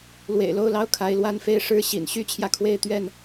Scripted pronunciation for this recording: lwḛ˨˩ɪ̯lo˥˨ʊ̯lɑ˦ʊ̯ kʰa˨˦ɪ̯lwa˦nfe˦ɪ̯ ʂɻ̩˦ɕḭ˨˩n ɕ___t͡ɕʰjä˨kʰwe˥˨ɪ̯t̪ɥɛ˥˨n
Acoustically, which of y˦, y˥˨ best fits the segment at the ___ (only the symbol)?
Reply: y˦